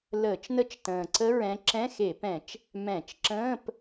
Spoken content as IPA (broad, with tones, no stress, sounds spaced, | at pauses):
l əː˧˩˧ t͡ʃ n ə˦˥ t͡ʃ t ə̃ː˨˩ ǀ ə˦˥ ɹ ɛ̃˨˦ ǁ ɛ̃˧˥˧ x e˧˩˧ p ɛ̃˧˩˧ t͡ʃ | m ɛ̃˧˩˧ t͡ʃ ǁ ə̃ː˧˥˧ p